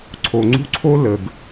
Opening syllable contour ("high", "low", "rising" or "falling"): low